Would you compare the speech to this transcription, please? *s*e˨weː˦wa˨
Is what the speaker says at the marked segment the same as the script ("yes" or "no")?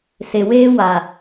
yes